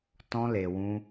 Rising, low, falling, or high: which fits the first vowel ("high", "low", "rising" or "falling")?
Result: high